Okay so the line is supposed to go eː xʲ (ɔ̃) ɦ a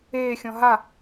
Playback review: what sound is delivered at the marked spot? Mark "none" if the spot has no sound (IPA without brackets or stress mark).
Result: ɔ̃